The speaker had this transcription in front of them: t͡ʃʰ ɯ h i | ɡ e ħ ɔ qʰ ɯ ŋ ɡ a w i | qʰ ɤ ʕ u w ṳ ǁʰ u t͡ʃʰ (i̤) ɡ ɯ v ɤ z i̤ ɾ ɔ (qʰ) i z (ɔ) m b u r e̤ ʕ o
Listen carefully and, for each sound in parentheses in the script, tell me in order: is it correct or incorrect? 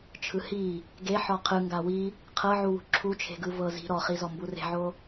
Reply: incorrect, incorrect, correct

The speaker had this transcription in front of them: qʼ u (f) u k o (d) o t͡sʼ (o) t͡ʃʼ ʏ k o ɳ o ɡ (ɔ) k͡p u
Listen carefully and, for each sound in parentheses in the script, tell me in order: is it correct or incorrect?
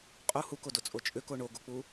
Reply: incorrect, correct, correct, incorrect

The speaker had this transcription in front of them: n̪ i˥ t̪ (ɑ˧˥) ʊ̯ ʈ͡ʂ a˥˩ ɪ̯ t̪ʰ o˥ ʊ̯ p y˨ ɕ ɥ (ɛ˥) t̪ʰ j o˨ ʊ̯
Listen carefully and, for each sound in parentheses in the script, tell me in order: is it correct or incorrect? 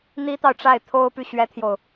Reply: incorrect, correct

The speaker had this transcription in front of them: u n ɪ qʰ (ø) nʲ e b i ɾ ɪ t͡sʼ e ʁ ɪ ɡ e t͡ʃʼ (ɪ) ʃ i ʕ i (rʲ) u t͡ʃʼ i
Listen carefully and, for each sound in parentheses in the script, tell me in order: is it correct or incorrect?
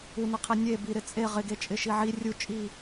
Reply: incorrect, correct, correct

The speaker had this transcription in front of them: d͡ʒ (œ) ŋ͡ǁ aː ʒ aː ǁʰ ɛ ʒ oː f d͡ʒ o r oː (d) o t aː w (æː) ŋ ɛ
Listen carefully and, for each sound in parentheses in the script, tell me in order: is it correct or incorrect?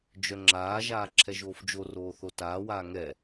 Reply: correct, incorrect, incorrect

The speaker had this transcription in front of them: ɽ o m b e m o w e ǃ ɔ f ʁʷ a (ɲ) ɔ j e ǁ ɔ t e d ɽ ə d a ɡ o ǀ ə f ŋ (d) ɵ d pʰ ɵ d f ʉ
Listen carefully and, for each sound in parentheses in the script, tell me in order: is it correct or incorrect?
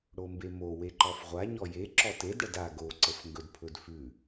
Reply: correct, incorrect

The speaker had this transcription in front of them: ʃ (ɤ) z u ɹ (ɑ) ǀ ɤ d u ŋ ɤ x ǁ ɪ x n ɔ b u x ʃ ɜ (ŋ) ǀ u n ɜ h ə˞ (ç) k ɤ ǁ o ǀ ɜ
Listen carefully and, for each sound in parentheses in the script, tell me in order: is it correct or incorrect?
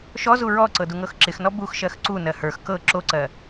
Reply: incorrect, incorrect, incorrect, incorrect

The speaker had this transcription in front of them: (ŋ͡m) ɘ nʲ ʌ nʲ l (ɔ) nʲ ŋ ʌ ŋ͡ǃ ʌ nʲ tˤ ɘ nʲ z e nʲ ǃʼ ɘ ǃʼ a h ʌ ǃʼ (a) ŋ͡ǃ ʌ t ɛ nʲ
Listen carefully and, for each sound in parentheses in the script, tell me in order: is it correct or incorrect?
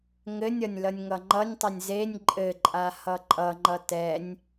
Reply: incorrect, incorrect, incorrect

